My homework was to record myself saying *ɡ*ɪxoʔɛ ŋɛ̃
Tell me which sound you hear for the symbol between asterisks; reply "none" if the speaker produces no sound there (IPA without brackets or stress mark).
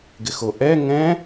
ɡ